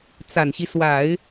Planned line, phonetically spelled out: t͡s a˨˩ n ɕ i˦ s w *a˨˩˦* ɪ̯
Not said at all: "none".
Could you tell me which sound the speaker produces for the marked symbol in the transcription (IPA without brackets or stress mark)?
a˨˩˦